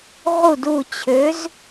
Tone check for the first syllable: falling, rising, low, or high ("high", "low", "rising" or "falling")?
falling